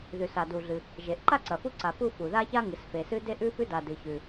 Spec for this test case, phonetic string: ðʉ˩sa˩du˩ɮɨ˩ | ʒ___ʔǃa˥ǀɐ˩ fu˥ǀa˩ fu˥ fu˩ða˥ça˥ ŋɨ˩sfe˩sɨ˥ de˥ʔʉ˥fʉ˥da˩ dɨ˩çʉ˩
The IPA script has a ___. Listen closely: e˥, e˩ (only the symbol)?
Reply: e˩